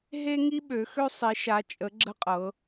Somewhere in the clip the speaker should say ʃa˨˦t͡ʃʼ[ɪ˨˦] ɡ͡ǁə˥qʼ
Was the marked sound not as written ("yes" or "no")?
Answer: yes